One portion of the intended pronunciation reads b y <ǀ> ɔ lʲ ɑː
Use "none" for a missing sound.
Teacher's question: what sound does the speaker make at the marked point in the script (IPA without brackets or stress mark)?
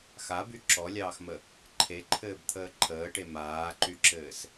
ǁ